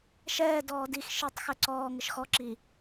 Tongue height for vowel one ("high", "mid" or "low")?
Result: mid